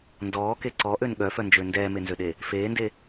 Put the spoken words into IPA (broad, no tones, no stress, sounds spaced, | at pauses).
n d ɔː k e ǀ ɔ ʔ ø n ɠ œ f œ n d͡ʒ ø n d ɛː m e n z ø ɗ e | f eː n d e